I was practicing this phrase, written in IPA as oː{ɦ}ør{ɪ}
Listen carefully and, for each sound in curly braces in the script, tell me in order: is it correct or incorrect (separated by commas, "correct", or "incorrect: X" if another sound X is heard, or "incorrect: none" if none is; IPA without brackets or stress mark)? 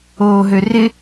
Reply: correct, correct